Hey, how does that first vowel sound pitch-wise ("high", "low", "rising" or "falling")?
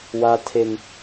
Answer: high